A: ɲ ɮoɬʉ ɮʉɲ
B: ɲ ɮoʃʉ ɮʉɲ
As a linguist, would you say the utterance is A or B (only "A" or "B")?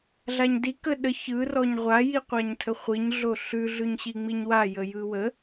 A